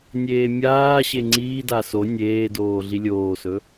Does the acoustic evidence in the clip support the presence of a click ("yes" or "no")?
yes